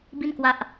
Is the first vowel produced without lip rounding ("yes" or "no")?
yes